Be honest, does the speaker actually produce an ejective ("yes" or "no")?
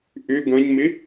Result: no